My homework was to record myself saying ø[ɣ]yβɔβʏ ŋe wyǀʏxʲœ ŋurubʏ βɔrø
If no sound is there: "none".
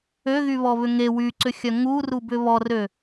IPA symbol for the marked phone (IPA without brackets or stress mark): ɣ